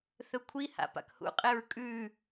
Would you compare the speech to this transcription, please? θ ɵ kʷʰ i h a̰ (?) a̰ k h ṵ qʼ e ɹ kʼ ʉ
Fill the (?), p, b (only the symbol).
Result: p